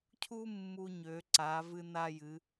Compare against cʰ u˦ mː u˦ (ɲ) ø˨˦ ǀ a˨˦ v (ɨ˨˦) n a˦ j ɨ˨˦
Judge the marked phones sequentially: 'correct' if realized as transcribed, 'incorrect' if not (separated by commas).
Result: correct, incorrect